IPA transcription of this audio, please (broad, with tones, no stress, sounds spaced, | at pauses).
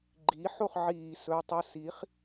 ɡ͡ǃ iː˩˥ ħ o˥˨ χ ʕ iː˧˩˧ s ɵ˩˧˩ tˤ ə˥˨ s i˩˥ χ